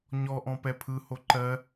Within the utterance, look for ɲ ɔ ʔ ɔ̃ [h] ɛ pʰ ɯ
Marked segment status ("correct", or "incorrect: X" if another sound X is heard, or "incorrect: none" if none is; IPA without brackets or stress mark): incorrect: p